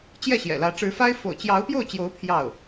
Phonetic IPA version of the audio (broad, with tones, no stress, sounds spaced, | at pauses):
t͡ɕ j ɛ˥˩ ɕ j ɛ̰˨˩ l ä˧˥ ʈ͡ʂ ɻ̩˧˥ f a˥ ɪ̯ f o̰˨˩ ʊ̯ t͡ɕ j ɑ˧˥ ʊ̯ p j o˥˩ ʊ̯ t͡ɕ j o˧˥ ʊ̯ pʰ j ɑ˥˩ ʊ̯